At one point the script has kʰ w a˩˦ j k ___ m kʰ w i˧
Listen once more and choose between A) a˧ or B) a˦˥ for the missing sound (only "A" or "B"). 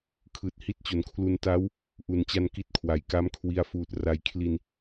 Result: B